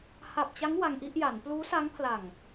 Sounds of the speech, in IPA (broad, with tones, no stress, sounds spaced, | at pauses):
h a˨˩ p̚ t͡ɕ a˦˥ ŋ w a˧ ŋ ʔ i˥˩ ʔ j a˩˦ n p l uː˦˥ s a˦˥ ŋ pʰ l a˨˩ ŋ